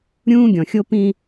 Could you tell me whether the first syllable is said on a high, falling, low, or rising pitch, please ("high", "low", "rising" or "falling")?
high